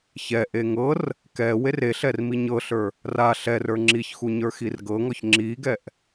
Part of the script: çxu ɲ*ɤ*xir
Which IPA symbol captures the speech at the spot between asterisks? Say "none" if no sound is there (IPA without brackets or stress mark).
ə˞